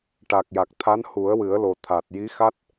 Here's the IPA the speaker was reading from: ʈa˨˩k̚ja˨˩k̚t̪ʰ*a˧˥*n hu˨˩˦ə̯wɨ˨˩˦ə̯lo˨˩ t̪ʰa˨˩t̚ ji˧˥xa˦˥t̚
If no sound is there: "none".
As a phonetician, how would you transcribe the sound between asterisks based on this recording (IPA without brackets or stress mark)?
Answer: a˧˥